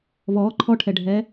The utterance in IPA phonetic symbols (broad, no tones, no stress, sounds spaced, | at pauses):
β ɔː ǃʰ ɔ ʈʰ ɛ ɖʱ ɛː